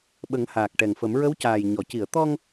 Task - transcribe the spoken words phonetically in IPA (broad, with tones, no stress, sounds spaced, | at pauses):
ɓ ə˨˩˦ ŋ h aː˨˩ k̚ ʈ ɛ˨˩ ŋ f ə˨˩˦ m ɹ ə˧˥ w c aː˨˩ j ɲ ɔ˨˩˨ c i˨˩˨ ə̯ t̪ ɔ˧ ŋ